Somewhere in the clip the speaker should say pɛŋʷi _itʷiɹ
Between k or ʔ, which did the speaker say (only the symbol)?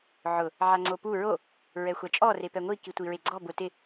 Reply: k